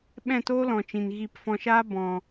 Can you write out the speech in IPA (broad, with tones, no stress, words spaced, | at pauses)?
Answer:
ɓɛ̃˦˨toː˦lɔ̃˨t͡ʃĩ˨n ɣi˧p fɔ̃˧ʃaː˦ bɔ̃˨